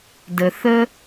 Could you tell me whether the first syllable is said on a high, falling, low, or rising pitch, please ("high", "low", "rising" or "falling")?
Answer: low